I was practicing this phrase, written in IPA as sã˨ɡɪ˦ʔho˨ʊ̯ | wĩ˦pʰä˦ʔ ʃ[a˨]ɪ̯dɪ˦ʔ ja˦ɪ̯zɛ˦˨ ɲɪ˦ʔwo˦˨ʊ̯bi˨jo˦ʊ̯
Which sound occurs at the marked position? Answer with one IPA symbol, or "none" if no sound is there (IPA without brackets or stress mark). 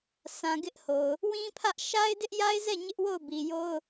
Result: a˦